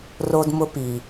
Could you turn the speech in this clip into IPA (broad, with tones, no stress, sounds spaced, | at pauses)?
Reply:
r o˦ d m ʊ˦ p i˨